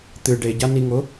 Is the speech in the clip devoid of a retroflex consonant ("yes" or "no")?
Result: no